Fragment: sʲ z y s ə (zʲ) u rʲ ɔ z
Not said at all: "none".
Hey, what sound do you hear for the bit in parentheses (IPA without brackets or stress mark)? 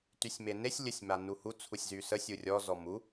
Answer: sʲ